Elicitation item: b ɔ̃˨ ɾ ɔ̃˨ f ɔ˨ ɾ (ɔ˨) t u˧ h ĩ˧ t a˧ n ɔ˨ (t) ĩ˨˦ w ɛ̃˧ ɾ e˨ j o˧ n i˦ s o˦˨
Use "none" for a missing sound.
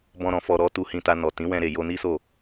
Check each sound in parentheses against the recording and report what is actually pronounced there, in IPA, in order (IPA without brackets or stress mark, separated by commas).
ɔ˨˦, t